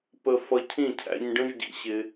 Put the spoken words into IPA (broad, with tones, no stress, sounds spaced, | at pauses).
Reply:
p ə˧ f ʌ˧ cʰ ĩ˦˨ cʰ æ̰˧ ɲ ɖ ə̃˦ ʒ ɟ ḭ˧ ɕ ɪ˧